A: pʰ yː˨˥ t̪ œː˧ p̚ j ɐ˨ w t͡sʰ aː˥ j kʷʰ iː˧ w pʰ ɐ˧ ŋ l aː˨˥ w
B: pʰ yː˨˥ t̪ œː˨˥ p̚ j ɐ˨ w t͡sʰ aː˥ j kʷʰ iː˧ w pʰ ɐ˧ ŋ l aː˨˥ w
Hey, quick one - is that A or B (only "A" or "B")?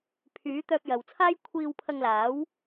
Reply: A